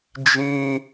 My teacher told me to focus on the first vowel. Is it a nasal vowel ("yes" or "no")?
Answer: yes